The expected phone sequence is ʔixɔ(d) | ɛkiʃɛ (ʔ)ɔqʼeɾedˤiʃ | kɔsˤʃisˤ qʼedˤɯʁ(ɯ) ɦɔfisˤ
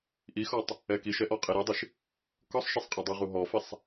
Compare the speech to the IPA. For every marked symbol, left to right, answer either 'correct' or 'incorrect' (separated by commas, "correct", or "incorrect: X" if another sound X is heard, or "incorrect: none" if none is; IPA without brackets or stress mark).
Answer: incorrect: tˤ, correct, incorrect: u